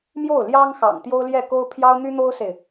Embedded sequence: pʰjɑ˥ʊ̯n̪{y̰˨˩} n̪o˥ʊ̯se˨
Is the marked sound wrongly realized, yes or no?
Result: yes